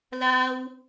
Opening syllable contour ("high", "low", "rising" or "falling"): high